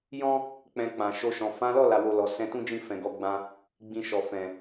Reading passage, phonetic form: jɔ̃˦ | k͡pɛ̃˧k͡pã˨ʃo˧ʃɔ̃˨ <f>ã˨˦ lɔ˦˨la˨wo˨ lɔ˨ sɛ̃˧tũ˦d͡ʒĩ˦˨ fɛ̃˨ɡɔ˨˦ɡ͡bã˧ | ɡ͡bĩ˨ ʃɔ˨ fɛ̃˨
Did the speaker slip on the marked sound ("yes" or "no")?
no